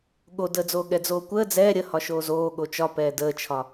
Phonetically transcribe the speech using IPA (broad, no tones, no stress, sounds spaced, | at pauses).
ɠ o d əː d͡z oː ɠ ɛ d͡z oː kʷ əː d͡z ɛː ɾʲ ə h ɒ ʃ oː z oː ɠ o t͡ʃ ɒ p ɛː d əː t͡ʃʰ ɒ